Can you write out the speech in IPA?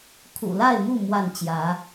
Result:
kʰ ṵ˨˩ l a˥˨ ɪ̯ m u˥˨ m w a˥˨ n t͡ɕ j ä˨˦

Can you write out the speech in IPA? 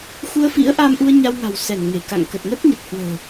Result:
x u˧ ə̯ f ḭ˧˥ ə̯ ʔ aː˧ m ʔ u˧ ə̯ ɲ a˧ w ŋ a̤˨˩ w s ɛ˧˩ n ŋ e˧˩ k a̰˧˨ ŋ k ə˨˩ t̚ ŋ ə˦˥ t̚ ɲ ə˨˩ t̚ h w ə̤ː˨˩

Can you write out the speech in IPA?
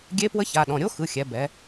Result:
ɡʲ e˦˥ p w ə˦˥ ç a˩˧˩ ɗ ɔ̃˩˧˩ ɾʲ o˦˥ x ɯ˩˧˩ xʲ ɛ˩˧ b ɛ˩˧

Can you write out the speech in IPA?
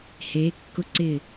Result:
h eː˩˧ kː ʊ˧ ǀ ɪ˧˩

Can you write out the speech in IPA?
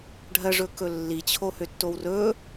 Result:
ɖʱ ɜ ʐ ɵ k ɵ lː i t͡ɕʰ o h ø tː o w r ɵ

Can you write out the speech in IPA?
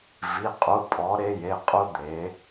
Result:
v i˩˧˩ qʼ u˩˧˩ pʼ ɔ˩˧ ɾ e˧ j e˩˧˩ qʼ u˧ d̪ e˩˧

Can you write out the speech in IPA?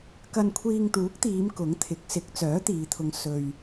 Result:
k ɐ˧ n kʷʰ iː˧ ŋ t̪ uː˨˥ k̚ t̪ iː˨˧ m k ʊ˨˥ ŋ t̪ʰ ɪ˨˥ k̚ s ɪ˨˥ k̚ t͡s œː˨˥ t̪ iː˨˧ t̪ʰ ʊ˧ ŋ s ɵ˧ ɥ

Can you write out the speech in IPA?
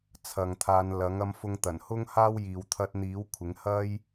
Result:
t͡sʰ ɐ˨ ŋ t̪ʰ aː˨˧ n l ɐ˨˥ ŋ ɐ˧ m f ʊ˧ ŋ t̪ ɐ˨˩ n h ʊ˥ ŋ h aː˥ w j iː˨ w t̪ʰ ɐ˧ t̚ n̪ iː˨˥ w kʷʰ ɪ˨˥ ŋ h ɐ˥ j

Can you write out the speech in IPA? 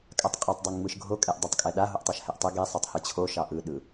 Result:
kʼ a tˤ qʼ o tˤ dˤ ɛ ŋ ŋ͡m ɯ ʃ ɡʱ o kʼ ɛ ʔ dˤ o tˤ kʼ ɛ ɗ a ɦ o ʔ tˤ a ʃ h ɛ ʔ tˤ ɯ ɡ e sˤ e tˤ h ɯ t͡ɕʰ o ʃ ɑ ʔ ɯ ɗ ɯ

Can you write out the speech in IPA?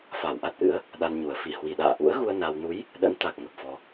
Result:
f a˧˩ w ʔ a˦˥ t̚ ʔ ɨ̰˧˥ ə̯ | ɗ a˧ n ɲ u˨˩ ə̯ f i˧˩ h w i˨˩ ɗ a̰ː˧˨ ʔ ṵ˧˥ ə̯ ɣ u˧ ə̯ n a˧ w n u˨˦ j | ɗ ə̰˧˥ n t̪ a˨˩ k̚ ŋ ə˨˩ p̚ f ɔ˧

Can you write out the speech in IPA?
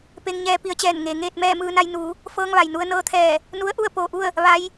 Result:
p e˧ ŋ ɲ ɛː˧ p i˧ ə̯ t͡ɕ ɛː˧˩ n ŋ e˩ ŋ eː˥˨ t̚ m ɛː˥˨ m ɯː˧ n a˧ j n uː˩˧ | f ɤː˧ ŋ ʋ a˩ j n u˧ ə̯ n ɤː˧˥ t̪ʰ ɛː˧˩ | n u˧˥ ə̯ ʔ u˥˨ ə̯ p oː˧˩ ʔ u˥˨ ə̯ | ʋ a˧˥ j

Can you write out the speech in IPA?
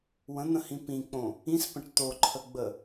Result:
w ə̃ n̪ ə̃ h ĩ p ĩ k͡p õ | ĩ s p ə̃ ʈ t̪ o ǃʰ ə ɡ͡b ə

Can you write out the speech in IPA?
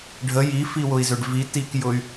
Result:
ɖʱ ə j i f i w ʊ i̯ z ʏ ɖ v i t i k j ʊ y̯

